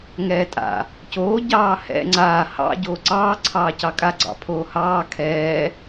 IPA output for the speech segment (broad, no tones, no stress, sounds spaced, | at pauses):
ŋ ɛː tʼ a̰ | c oː ɟ ɑː h ɛ̰ ŋ͡ǀ aː h ɑ̰ ɟ oː ǀ ɑː ǀʰ ɑː c ɑ kʼ a ɡ͡ǀ ɑ̰ pʰ oː h ɑː kʰ ɛː